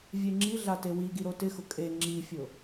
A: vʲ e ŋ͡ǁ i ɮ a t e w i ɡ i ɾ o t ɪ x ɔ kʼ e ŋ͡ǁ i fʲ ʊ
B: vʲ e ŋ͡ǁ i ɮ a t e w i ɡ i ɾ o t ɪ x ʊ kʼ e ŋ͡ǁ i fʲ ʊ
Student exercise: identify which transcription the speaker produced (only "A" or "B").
B